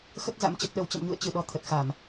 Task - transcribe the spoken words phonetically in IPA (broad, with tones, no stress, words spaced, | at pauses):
xə˦˥t̚za̰˧˥m t͡ɕə˨˩t̚ɗə˨˩wt͡ɕə̰˧˨m ɲṵ˧˨ə̯ t͡ɕɨ˧˩ɗɔ˨˩ t̪ʰə˨˩t̚xa˧˩˨m